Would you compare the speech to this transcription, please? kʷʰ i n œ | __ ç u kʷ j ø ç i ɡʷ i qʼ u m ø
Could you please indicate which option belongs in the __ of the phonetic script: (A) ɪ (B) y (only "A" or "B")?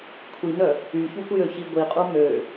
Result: B